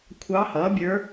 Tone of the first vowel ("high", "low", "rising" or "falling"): rising